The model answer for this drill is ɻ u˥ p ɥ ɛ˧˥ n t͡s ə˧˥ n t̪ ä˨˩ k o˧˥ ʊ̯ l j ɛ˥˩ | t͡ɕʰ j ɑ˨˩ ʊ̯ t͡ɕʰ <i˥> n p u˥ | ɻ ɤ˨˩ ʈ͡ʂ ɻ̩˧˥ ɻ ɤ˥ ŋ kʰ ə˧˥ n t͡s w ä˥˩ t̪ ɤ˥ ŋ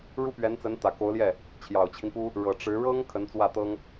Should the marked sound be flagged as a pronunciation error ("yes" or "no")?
yes